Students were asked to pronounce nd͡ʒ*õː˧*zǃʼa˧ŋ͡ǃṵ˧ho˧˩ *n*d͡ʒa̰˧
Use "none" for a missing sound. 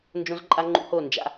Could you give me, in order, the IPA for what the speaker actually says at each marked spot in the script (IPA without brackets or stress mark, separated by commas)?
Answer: õ˧, n